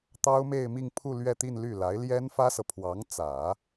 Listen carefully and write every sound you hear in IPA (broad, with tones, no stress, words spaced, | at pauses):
t̪ɑ˥ʊ̯me˥˧ɪ̯mi˥˧ŋpʰu˥˧ lɥɛ˥˧t̪i˥˧nly˥˩ la˧˥ɪ̯ljɛ˥nfä˥sɤ˨ pʰwɑ˧˥ŋt͡sä˨˩˦